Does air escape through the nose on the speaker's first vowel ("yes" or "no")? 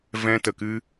yes